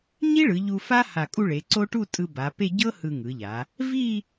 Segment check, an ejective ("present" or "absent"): present